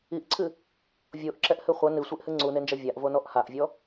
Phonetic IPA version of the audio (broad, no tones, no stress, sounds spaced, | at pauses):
i ʔ ǀʰ ɨ | vʲ o ʔ ǁ ɛ ʔ h ɨ χʷ ɐ n ɨ sʷ i ʔ h ɨ ŋ͡ǀ u n e n d͡ʒ ɐ vʲ a ʔ v o n ɔ ʔ h a ʔ vʲ ɔ